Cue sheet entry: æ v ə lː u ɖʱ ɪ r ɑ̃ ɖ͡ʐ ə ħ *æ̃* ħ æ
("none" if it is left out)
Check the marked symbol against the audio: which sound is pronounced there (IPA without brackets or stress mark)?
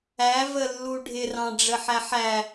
æ